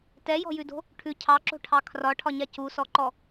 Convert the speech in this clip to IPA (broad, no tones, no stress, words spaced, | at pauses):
tɛjɔ̤jʉdo̤ | ʈʰʉ cʰɑǁo̤ʈʰɑ kʰrɒʈʰɒɲa cusɔǃɔ